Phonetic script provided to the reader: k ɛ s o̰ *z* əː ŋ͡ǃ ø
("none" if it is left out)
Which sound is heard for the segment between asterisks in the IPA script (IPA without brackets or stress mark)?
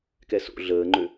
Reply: ɮ